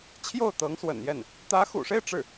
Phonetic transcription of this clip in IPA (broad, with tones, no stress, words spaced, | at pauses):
t͡ɕʰjo˥˩ʊ̯t̪ɤ˧˥ŋswə̰˨˩njɛ˥˩n | t̪ä˧˥xṵ˨˩ʂe˥˧ɪ̯ ʈ͡ʂɻ̩˥˩